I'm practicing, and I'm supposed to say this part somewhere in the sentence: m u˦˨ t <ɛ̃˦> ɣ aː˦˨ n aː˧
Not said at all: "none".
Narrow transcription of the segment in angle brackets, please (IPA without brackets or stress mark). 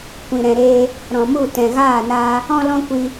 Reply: ɛ̃˨